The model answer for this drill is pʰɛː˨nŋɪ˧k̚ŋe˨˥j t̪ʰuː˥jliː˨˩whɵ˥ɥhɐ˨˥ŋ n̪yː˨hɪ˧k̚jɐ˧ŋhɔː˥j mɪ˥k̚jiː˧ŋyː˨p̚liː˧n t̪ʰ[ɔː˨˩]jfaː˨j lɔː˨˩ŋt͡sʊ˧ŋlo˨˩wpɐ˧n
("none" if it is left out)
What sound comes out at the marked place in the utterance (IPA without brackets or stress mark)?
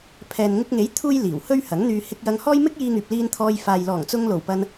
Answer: ɔː˧